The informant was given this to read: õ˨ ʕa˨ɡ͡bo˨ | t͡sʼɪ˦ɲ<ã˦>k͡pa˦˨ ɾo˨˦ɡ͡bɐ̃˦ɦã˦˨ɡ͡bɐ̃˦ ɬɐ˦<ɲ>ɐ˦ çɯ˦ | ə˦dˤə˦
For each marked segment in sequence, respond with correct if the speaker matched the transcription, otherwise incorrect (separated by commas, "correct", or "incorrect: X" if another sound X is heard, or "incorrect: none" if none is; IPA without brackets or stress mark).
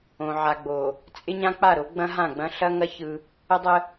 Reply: correct, incorrect: ŋ